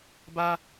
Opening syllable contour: low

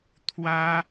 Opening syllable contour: high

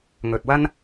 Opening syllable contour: low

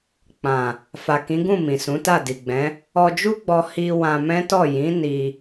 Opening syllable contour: low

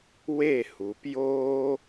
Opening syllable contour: falling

